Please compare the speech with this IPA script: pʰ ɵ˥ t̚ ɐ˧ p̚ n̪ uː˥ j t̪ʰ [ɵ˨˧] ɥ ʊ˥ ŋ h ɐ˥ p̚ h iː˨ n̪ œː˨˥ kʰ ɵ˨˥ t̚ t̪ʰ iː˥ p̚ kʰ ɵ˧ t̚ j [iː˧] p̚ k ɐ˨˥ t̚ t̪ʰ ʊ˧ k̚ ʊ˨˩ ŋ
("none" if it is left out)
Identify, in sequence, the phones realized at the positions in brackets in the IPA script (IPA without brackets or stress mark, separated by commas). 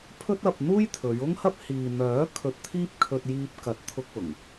ɵ˨˧, iː˧